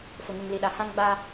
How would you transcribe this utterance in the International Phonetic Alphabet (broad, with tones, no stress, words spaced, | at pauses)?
fʊ˨ŋu˨ŋli˨ɗa˨ hã˦ŋ ɡ͡ba˦